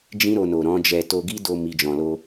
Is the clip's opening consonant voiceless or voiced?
voiced